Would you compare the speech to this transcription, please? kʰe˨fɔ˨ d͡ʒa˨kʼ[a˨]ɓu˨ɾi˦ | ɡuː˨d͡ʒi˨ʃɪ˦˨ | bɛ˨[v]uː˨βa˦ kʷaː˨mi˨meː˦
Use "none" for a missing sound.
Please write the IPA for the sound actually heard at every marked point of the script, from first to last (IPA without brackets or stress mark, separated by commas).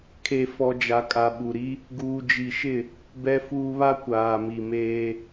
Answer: a˨, f